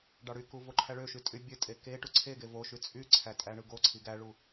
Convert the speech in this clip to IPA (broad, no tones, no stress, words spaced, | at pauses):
ɖɑɽyku voǃʰæɭøʃy tʼybʲøtʼe ke ʈuǀʰeɡe voʃy t͡sʼyǀʰæ tʼæɳɯɡoǀʰi ɡæɭu